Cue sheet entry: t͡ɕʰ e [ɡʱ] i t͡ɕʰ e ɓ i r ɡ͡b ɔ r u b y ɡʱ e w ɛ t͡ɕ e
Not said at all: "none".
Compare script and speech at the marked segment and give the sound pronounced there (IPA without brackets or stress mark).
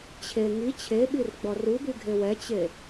ŋ